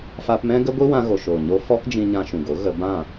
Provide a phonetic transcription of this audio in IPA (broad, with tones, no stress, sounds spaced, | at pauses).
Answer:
f a˧ p m ɛ̃˦ ɡ ə˦ ɡʷ i˦ w ã˧ ɣ o˨ ʃ oː˨ ɲ o˧ f ɔ˦ k d͡ʒ ĩ˧ ɲ ã˧ ʃ ũ˨ ɡ o˨˦ ɣ ə˧ b ã˦˨